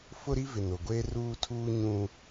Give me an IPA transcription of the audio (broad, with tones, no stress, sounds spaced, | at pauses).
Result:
f ʊ˦ ɾ i˦ v ɪ˨ n o˨ ɡʷ eː˦ r uː˦ tʰ uː˦ ɲ ũ˦